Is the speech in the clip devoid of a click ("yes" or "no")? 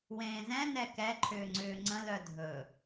no